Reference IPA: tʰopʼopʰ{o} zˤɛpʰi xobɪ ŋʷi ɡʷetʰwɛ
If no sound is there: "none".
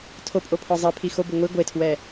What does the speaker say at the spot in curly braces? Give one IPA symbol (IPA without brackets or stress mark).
ɔ